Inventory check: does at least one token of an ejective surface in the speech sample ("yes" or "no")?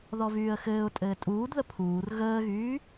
yes